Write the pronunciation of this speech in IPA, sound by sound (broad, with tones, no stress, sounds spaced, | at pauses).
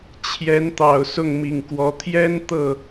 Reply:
t͡ɕʰ j ɛ˧˥ n t̪ ɑ˨˩ ʊ̯ s ʊ˥˩ ŋ m i˨˩ ŋ k w ɔ˧˥ t̪ʰ j ɛ˥ n t̪ ɤ˥˩